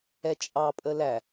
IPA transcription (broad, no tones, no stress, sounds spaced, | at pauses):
ɛ t͡ʃʼ ɑ pʼ ə l æ